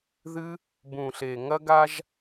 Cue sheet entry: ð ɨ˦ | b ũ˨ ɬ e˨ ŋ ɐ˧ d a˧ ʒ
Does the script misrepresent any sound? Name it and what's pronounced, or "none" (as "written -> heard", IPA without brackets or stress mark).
d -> ɡ